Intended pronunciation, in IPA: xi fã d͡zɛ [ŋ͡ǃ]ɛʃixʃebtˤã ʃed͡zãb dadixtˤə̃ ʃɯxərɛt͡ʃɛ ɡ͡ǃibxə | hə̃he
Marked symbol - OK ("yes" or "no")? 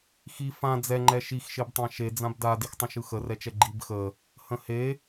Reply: yes